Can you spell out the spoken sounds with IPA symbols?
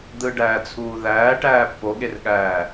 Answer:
d̪ ɯ ɖ æː t͡sʰ uː ð æː ʈ æː pː o ɠ e r ɠ æː

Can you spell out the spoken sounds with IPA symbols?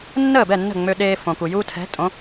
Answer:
nː əː˥˩ b ɛ˥˩ nː ə̤˥˩ ŋ͡m ø˧ ɗ eː˧ f õ˩ k u˩ j u˧ tʰ ɛ̤˩˥ tʼ õ˩˥

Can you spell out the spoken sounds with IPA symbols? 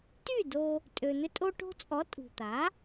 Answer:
t y˥˩ d o˧ | tʼ ø˩ n̪ ʏ˧ tʼ o˧ ʈ o̤˧ t͡sʼ ɔ˩˥ tʼ ṳ˩ t̪ a˩˥

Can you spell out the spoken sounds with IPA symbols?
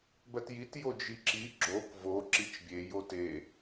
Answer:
b ɜ t j i t j o d͡ʒ i ǁ i ɡ͡ǁ o k v o ǁ i t͡ʃ bʲ e j o t e

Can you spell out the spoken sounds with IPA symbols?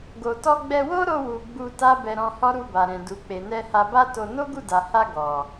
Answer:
ɡ o˨ t ɔ˧ ɡ͡b ɛ˧ w o˦ ɾ o˧ w u˨ ɡ͡b u˧ t a˦ b ɛ˧ ɾ ɔ̃˧ h ɔ˦ ɾ u˧ b a˨ ɾ ɛ̃˨ d u˨ k͡p e˨ n ɛ˧ h a˧ b a˦ t o˧ n o˦ ɡ u˦˨ d a˨ h a˧ ɡ ɔ˨

